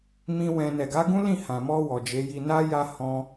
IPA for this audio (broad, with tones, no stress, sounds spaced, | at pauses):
m ĩ˦ w ɛ̃˧ n ɛ˨ ɡ a˨˦ ɡ ũ˦ l ĩ˦˨ h ã˨ m ɔ˧ w ɔ˨ d͡ʒ e˨˦ j i˧ n a˦ j a˧ h ɔ̃˦